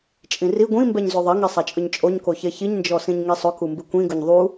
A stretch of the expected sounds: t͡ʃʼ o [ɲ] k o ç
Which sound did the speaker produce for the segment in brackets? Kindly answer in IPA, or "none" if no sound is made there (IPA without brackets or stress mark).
ɲ